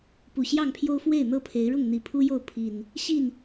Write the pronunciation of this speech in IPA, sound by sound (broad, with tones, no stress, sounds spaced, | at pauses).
p u˨˩ ɕ j ɑ˥˨ ŋ pʰ j o˦ ʊ̯ f w e˥˨ ɪ̯ n̪ ɤ˦ pʰ e˨˦ ɪ̯ ɻ ʊ˥˨ ŋ n̪ i˨˩ pʰ u˦ j o˥˨ ʊ̯ pʰ i˨˩ n | ɕ i˥˨ n